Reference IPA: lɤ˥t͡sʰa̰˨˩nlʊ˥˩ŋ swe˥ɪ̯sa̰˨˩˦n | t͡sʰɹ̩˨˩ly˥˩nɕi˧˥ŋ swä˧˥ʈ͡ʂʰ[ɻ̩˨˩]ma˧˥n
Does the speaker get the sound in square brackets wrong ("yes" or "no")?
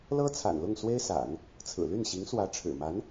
no